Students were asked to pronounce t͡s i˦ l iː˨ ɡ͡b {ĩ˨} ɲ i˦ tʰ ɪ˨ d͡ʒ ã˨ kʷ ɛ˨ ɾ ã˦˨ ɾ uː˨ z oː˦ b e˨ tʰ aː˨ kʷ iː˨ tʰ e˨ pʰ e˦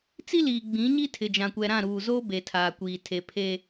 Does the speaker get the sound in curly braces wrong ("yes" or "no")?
yes